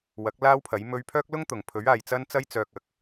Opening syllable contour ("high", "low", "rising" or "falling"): rising